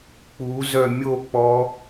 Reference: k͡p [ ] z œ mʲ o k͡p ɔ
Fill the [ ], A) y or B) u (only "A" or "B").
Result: B